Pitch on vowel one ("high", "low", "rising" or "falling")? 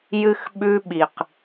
high